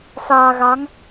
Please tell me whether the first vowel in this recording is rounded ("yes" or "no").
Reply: no